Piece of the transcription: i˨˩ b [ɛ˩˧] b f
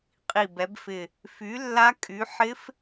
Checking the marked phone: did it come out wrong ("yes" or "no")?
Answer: no